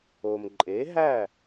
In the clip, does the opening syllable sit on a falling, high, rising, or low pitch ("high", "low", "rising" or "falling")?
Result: low